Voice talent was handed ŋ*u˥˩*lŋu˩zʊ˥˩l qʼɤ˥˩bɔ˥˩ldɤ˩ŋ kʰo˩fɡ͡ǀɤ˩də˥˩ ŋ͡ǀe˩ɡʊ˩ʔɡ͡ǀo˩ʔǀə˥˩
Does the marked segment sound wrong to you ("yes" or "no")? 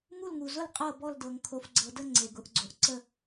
no